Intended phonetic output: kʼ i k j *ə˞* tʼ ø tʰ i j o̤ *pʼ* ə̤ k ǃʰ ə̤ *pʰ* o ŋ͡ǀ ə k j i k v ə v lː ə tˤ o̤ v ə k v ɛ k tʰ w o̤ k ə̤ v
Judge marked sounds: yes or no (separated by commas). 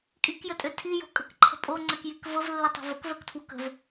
no, no, no